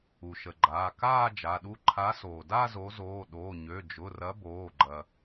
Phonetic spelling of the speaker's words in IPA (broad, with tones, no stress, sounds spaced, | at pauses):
u˩ ʃ ə˩ ɡ͡ǃ aː˩˧˩ k aː˥˧ d͡ʒ a˩˧˩ ɗ u˥˧ ǃʰ a˨˦ s oː˩ d a˥˧ z o˨˦ z oː˩˧˩ ɗ oː˩˧˩ ɲ ø˩˧˩ d͡ʒ ʊ˩˧˩ r ɐ˨˦ b oː˩˧˩ ɡ͡ǃ ɐ˩